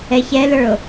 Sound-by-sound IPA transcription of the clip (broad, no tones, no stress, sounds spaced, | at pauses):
ɛ ç ɛ l ə˞ o̯